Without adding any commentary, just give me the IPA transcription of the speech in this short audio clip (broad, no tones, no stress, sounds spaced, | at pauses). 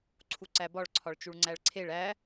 ǀʰ u ǀ æ b ɒ ɭ ǀʰ ɒ ɭ t͡ʃ u ɭ ŋ͡ǀ æ ɭ ǀʰ e ɭ æ